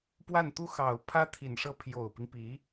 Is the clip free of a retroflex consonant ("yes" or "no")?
no